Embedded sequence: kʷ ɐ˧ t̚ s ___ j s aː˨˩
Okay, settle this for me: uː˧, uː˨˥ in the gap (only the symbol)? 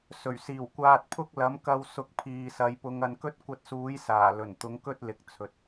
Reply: uː˨˥